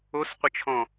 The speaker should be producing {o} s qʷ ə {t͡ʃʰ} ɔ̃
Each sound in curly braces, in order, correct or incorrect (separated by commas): correct, correct